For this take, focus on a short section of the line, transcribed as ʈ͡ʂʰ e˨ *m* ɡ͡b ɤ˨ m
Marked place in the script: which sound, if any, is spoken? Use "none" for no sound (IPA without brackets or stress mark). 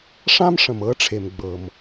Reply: m